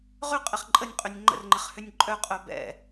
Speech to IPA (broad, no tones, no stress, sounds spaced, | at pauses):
ʁ ʏ qʼ ɪ χ ǃʼ ə nʲ qʼ ʏ nʲ ŋ͡ǃ ə̰ r ŋ͡ǃ ɪ χ h ʏ nʲ ǃʼ œ qʼ œ b ɛ̰